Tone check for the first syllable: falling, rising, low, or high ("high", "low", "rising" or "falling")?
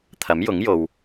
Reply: rising